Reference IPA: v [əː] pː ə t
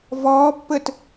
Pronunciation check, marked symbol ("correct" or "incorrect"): incorrect